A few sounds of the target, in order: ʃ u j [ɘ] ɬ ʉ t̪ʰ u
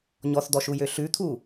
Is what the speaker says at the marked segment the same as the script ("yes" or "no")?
no